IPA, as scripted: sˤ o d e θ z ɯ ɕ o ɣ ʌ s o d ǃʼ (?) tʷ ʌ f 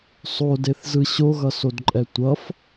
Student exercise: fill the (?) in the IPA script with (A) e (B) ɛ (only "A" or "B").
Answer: B